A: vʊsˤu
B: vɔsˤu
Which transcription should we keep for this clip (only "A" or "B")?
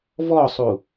B